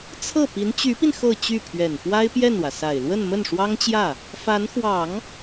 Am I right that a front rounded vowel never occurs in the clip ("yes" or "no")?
no